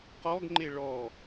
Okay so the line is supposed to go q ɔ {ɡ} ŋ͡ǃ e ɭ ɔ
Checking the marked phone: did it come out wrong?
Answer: no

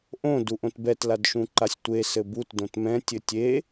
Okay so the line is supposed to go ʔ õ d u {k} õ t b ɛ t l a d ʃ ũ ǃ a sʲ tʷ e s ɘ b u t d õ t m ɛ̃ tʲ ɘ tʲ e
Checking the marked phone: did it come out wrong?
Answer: yes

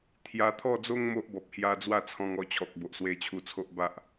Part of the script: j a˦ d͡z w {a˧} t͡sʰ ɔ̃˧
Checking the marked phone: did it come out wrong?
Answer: yes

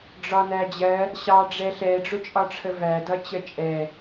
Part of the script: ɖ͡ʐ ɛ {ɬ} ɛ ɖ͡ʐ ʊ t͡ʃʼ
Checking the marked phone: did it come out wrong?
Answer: no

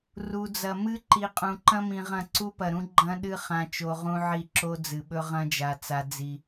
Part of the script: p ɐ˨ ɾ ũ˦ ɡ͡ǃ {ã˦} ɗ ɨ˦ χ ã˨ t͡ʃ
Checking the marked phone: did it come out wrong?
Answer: yes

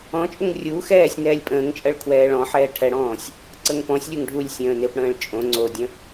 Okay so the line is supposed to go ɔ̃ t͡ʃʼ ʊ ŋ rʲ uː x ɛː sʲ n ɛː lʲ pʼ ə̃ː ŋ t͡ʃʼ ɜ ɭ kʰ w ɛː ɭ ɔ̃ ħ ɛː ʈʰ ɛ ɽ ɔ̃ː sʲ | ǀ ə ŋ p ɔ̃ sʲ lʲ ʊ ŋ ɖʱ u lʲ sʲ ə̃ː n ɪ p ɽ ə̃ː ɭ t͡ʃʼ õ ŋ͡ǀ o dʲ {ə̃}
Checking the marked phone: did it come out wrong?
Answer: no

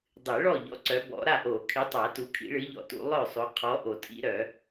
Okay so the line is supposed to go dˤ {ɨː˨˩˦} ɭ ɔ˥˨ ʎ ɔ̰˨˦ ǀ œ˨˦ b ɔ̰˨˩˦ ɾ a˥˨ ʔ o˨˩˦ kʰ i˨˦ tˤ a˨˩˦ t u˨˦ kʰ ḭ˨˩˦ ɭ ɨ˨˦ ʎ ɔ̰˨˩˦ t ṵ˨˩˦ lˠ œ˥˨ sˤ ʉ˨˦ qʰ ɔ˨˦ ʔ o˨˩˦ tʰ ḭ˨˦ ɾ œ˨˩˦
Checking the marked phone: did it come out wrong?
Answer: yes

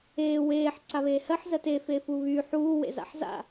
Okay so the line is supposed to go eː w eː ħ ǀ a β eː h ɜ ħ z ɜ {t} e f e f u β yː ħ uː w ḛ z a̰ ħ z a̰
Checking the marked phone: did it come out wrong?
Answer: no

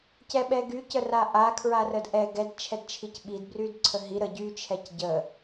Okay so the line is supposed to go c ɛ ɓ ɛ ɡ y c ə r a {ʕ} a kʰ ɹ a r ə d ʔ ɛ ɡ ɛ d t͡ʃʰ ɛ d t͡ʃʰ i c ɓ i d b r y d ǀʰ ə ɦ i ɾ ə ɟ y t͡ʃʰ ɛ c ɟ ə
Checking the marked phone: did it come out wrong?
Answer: yes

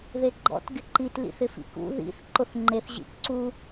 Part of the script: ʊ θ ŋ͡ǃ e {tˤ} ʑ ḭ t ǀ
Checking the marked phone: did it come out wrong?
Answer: yes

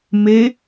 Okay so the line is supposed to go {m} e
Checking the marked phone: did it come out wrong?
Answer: no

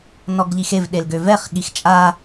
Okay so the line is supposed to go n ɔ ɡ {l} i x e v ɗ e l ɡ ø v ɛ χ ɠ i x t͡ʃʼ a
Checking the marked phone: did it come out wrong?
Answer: yes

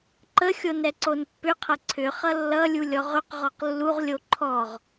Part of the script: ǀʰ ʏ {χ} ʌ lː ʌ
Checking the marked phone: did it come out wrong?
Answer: no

